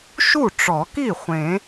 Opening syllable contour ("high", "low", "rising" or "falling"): falling